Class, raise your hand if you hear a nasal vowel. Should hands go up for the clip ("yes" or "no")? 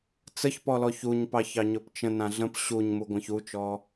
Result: yes